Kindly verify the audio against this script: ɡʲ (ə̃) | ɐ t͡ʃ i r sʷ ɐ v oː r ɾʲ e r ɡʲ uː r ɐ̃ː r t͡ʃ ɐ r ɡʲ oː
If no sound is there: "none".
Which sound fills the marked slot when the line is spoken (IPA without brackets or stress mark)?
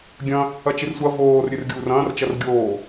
ɐ̃